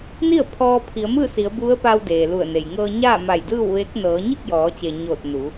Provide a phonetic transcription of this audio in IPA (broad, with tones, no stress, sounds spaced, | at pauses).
n i˥˨ ə̯ pʰ ɔː˧ pʰ i˩˧ ə̯ m ɯː˥˨ s i˩˧ ə̯ b u˧˥ ə̯ p a˧ w d eː˩ l u˧˩ ə̯ n e˩ j ŋ ɤː˧ ɲ aː˥˨ m a˧˩ j d ɯː˥˨ w ʋ eː˧˥ k̚ n ɤː˩˧ ɲ i˥˨ k̚ j ɔː˩˧ t͡ɕ e˩ ɲ oː˧˩ t̚ n u˩˧